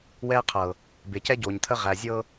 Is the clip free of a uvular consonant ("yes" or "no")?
no